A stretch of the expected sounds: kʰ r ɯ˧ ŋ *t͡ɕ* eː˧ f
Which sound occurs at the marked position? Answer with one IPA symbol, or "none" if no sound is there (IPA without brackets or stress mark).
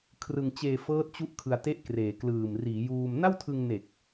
t͡ɕ